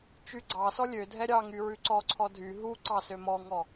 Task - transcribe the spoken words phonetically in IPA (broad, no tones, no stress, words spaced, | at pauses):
t͡ʃyɡ͡ǀɑsɔ lʲø dʱɛɾʲɑŋy ɹʉǀɔǀʰɔ dʱy ɦu ǀɑsømɔŋɔ